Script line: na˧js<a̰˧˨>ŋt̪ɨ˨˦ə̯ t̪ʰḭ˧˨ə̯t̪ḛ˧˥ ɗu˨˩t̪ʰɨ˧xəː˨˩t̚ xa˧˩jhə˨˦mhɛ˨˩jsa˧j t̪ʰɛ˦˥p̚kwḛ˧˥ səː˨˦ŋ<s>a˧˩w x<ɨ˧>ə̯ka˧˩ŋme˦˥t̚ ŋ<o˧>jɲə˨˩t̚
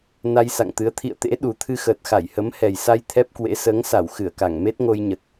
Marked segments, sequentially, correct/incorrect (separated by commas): correct, correct, incorrect, correct